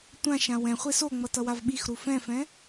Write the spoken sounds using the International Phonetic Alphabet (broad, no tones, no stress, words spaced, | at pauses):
tʷãʃã wɛ̃ χʷesoŋ͡mʌ tʌwavɓixɾu fɛ̃fɛ̃